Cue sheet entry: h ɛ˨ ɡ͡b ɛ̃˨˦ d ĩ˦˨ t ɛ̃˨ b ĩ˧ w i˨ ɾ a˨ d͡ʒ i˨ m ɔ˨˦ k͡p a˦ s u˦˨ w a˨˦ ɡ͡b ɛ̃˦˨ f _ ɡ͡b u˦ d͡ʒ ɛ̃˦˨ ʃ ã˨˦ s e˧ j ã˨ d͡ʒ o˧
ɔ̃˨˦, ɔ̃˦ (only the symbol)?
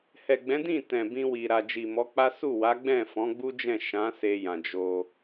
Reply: ɔ̃˨˦